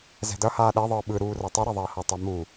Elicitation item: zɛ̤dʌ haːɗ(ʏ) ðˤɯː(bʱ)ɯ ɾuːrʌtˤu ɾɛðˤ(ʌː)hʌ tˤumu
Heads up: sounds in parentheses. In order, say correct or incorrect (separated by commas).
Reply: incorrect, incorrect, correct